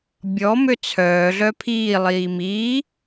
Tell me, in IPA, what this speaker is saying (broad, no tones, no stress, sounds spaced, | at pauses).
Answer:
bʲ ɔ m ø t͡sʰ œː ɮ œ pʰ iː lˠ iː m iː